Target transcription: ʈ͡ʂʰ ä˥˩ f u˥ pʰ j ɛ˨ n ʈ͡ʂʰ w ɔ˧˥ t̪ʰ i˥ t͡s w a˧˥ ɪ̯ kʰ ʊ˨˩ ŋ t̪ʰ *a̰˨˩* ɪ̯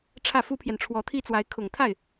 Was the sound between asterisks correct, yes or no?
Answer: no